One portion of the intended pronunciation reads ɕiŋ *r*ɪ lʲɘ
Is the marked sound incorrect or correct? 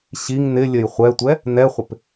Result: incorrect